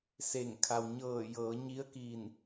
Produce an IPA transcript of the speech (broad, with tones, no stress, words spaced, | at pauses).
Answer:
se˧˩ŋ kʰa˩wɲɤː˧˩ jɤː˩˧ ɲi˧˥ə̯ ki˧˩n